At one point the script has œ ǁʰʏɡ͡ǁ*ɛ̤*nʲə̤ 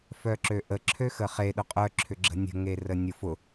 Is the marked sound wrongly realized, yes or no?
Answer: yes